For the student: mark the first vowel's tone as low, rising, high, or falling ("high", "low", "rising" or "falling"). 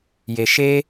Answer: low